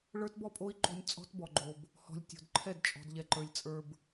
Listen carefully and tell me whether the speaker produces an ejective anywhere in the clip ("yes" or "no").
yes